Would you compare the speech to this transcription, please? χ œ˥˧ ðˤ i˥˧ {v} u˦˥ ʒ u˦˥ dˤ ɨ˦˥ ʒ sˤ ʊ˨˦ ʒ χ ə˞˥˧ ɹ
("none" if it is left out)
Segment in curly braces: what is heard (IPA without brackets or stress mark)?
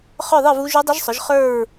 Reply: v